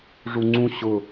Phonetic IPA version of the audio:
ʐuŋ͡ǀũ ɕʊ

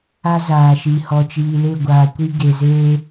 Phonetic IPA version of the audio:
a˦ zaː˨ʃi˨ hɔ˨t͡ʃiː˨le˦˨ ɡʷaː˨kʷi˦ ɡe˨zeː˦

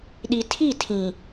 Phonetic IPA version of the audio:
ɗi˨tʰi˦˨tʰĩ˨

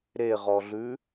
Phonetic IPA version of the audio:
ɾeʁɔɮʉ

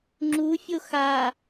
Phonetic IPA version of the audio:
ŋ͡ǁufʲo xa

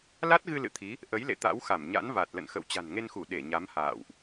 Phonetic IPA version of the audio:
la˦˥t̚ɣɨ˧ lɨ̰˧˨t̪ʰi˨˦ | ʔə˨˦jlḛ˧˨ t̪a̰˧˥wxa˧˩mɲa̰˧˥n va˨˩t̚lə̰˧˨nxə̰˧˨w t͡ɕa̤˨˩nŋe˧nxu˧˩ ɗe˧˩ɲa˨˦mha̰ː˧˨wʔ

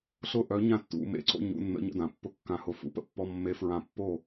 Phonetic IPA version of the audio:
ɬʊ˥˨ʔœ˧˥ ɲã˥˨tːṵ˧mḛ˧˥ǀo̰˧˥˧ ɲṵ˧˥˧nːə̰˧˥ ɲə̰˧˥˧dã˩˧pːʊ˧˥ kːã˧hʊ˧ fṵ˧˥pə̰˧˥pːɔ˧˥˧ mːe˧˥fɹã˧pːo˥˨

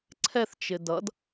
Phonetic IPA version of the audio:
ǀʰɛθt͡ʃɪ dʌd

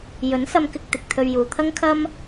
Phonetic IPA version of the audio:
jɵ˨˥nsɐ˧mkɪ˧k̚ t̪ɪ˨k̚t̪ʰɵ˧ɥ juː˨ t̪ʰɐ˥ŋkʰɐ˥m

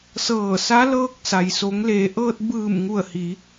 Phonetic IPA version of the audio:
sɤː˧˩sa˧˥lɤː˧k̚ sa˩jso˩˧ŋleː˩˧ʔɤː˧t̚ bɯː˧˩mŋu˧˩ə̯hi˩˧

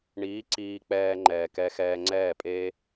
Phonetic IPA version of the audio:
ɳiː˨˦ ǀiː˧ k͡pɛː˧ŋ͡ǃɛː˨kɛ˧xɛː˧ ŋ͡ǀɛː˦˨pʼeː˦

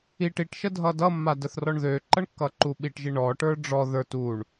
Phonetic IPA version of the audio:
iʈ iʈʃə dʱʌdʌmːa dəθrɔɳðøǃʌɳ kːʌǃuɓiʈʒi ɳɔʈə˞ ɖ͡ʐɔ ðə˞t uɳ

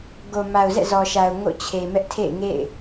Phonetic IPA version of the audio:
ɡo˨ma˨ʊ̯zɛ̰˦˨ zɔ˨ʃa˨ʊ̯ ŋo̰˦˨t͡ɕʰe˨ mɛ˦ʔtʰḛ˦˨ɪ̯ŋḛ˦˨ɪ̯

